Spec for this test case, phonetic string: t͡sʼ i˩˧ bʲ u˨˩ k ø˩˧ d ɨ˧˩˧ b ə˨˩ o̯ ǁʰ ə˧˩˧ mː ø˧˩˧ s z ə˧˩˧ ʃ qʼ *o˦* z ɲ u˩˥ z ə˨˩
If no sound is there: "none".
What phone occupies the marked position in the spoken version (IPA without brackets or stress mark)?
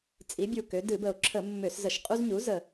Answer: u˦